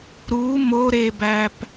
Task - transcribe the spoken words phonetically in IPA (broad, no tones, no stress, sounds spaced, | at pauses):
ɾ u m o ɾ e b æ p